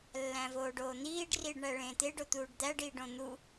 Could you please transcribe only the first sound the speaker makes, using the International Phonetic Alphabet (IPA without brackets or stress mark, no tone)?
lː